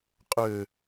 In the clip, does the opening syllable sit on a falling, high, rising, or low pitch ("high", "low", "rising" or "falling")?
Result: low